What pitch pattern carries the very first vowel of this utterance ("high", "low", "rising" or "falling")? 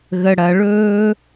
low